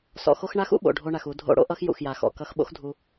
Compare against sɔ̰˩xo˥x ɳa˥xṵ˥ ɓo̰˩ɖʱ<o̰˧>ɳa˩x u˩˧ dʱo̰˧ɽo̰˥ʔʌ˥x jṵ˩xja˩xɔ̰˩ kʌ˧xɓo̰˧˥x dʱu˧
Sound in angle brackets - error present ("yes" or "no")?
yes